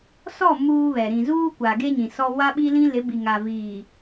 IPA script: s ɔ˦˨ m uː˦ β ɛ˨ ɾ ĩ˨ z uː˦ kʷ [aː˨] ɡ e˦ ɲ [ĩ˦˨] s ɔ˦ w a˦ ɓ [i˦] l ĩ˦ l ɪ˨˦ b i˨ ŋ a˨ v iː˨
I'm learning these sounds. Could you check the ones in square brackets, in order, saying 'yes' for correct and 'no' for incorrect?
no, no, yes

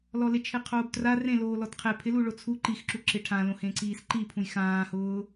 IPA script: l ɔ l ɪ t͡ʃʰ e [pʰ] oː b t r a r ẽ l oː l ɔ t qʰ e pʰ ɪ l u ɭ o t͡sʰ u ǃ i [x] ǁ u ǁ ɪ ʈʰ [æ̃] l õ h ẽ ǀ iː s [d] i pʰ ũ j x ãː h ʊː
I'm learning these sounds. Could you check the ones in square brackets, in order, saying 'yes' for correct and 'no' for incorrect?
no, yes, no, no

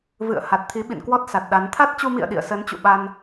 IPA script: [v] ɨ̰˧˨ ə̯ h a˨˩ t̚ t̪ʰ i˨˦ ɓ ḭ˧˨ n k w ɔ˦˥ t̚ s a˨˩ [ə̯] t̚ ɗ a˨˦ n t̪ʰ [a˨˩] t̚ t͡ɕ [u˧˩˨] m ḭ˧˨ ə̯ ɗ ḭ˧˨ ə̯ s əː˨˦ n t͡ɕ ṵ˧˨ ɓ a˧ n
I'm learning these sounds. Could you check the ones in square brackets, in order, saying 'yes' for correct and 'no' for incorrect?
yes, no, no, no

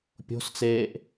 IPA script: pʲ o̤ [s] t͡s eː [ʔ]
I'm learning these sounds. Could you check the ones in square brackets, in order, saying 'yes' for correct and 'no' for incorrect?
yes, yes

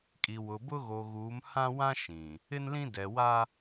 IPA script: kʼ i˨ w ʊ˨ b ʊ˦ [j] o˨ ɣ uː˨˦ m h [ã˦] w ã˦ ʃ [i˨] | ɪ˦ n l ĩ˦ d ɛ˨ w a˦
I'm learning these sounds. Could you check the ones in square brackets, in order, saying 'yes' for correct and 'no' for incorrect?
no, yes, no

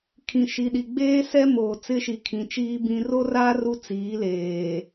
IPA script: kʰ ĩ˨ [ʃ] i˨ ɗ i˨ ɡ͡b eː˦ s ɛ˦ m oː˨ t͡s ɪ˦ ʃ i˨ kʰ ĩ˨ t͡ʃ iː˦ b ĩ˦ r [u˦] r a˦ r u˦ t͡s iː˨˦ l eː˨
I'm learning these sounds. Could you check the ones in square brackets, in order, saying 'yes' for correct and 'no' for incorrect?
yes, no

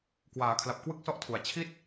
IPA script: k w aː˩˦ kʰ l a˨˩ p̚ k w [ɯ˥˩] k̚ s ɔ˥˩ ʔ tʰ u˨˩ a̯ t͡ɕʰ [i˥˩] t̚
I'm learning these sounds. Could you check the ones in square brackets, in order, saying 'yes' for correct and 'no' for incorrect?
yes, yes

